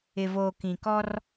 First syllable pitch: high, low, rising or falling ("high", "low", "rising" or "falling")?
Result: low